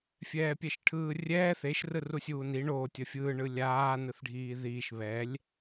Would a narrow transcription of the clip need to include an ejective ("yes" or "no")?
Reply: no